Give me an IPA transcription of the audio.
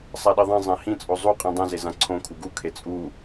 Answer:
sˤ a ɗ i ðˤ ẽ zˤ ɛ̃ h ĩ t͡sʼ o zˤ u qʼ ĩ dˤ ɛ̃ z e z ã ǀʰ õ kʰ u ɡ u kʰ e t͡sʼ u

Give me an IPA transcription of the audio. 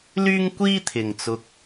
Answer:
l yː˥ ŋ kʷ iː˥ t̪ʰ ɪ˨ ŋ t͡s ʊ˧ k̚

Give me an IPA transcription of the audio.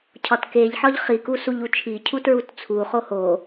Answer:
cʰ ɒ t k e ʎ ħ ɒ ʎ χ i k u s u ʎ u t͡ʃʰ i cʰ u t ɹ u t t͡sʰ u χ o h o

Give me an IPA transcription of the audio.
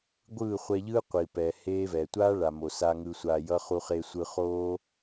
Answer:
ɡʷ ɯː˦˨ χʷ ɛ˧ ʎ ɯː˦ qʷ i˨ p ɛ˨ h eː˦ v ɛ˨ tʷ aː˦ ɭ a˨ m o˨ s a˧ ŋ ɯ˧ sʷ aː˧ j ʌ˦ χ u˧ χ e˧ sʷ ɯ˧ χ oː˦

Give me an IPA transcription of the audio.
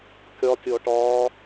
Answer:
kʲ ɒ tʲ ɔ ʈ ɒː

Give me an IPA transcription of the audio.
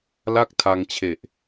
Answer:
l a˥˩ k̚ tʰ a˧ ŋ t͡ɕʰ e˨˩ ʔ

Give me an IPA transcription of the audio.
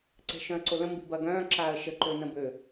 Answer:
ǀ ɛ̤ ʃ œ̃ ə̯ ǀ o l ə̃ m b i̤ b ɐ ɡ œ̃ː ǁ aː ə̯ ʃ ə ǃ ø n ə̃ b ø

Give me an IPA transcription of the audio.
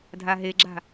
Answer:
dʱ a ɦ e ɡ͡ǁ a̤

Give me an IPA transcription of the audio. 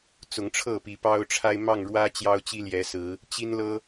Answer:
t͡s ʊ˨˦ ŋ ʈ͡ʂʰ ɤ˥˨ p i˨˩ p ɑ˦ ʊ̯ ʈ͡ʂʰ a˦ ɪ̯ m ɑ˥˨ ŋ ɻ w ä˦ t͡ɕ j ɑ˦ ʊ̯ t͡ɕ i˦ l j ɛ˨˦ s ɹ̩˨˦ | t͡ɕ i˦ n l ɤ˦

